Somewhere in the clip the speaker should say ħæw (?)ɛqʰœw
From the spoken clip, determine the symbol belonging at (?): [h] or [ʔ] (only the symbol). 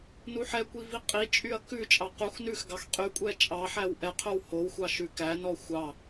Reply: ʔ